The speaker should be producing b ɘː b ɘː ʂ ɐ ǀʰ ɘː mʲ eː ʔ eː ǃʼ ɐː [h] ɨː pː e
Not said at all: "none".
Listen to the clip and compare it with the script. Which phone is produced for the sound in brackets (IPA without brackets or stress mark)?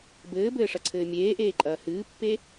h